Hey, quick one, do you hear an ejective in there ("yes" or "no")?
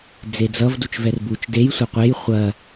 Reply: no